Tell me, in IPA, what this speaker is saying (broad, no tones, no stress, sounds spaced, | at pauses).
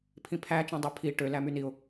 pʰ ĩ pʰ æ t͡ʃ ẽ dˤ i pʰ i ʈ ø l æ m y n i ʊ̯